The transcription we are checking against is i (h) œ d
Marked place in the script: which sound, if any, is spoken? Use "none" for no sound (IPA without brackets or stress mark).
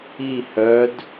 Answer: h